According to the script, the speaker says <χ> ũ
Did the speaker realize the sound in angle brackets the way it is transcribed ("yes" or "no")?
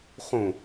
yes